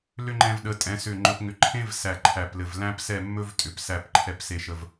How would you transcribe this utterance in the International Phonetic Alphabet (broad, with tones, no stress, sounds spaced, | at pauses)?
l ʏ˥ ŋ͡ǃ ɛ̃˧ v ɗ ə˩˧ tʼ ɛ̃˩˧ s ʏ˧˩ ŋ͡ǃ ɵ˧ p ŋ ʏ˧˩ ǃʰ ẽ˥ v s æ˧˩ ǃʰ æ˧˩ p l ɘ˧˩ v l æ̃˥ p s ɛ˥˧ mː ɵ˥ v tʼ ʏ˩˧ p s æ˥˧ p ǃʰ ɛ˥ p s e˥˧ ʃ ə˥˧ v